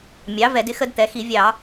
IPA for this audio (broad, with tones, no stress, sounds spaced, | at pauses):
mʲ ɑ˩˥ v ɛ˧˩˧ d ɪ˦ x ə˦ d t̪ ɛ˩˧ x i˧˩˧ vʲ ɑ˧˩˧